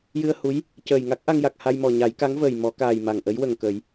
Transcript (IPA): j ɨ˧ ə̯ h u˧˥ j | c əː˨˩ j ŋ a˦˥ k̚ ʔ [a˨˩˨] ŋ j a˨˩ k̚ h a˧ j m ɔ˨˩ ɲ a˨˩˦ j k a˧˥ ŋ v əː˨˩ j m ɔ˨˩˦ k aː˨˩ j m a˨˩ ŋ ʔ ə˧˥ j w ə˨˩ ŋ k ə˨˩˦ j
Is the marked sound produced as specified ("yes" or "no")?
no